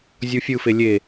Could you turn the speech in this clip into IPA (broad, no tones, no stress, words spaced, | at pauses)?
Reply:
zʲufʲɯfe lʲe